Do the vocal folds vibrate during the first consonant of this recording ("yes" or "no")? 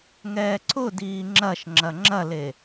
yes